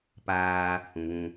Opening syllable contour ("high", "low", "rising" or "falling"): high